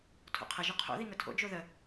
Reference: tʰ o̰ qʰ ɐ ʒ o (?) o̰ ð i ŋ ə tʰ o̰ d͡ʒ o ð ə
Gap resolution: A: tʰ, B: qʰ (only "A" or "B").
B